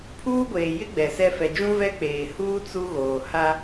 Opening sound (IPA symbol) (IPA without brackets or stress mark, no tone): pʰ